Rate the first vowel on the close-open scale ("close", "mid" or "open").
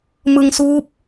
close